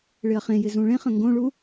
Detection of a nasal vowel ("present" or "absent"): present